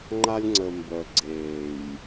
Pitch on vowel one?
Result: high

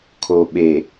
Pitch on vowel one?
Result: low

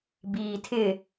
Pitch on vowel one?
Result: low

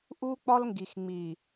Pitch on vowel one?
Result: high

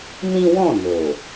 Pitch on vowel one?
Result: high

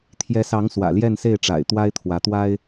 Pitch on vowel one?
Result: rising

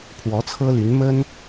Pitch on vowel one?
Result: rising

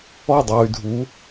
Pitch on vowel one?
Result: falling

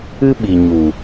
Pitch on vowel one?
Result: high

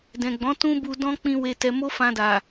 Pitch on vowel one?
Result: low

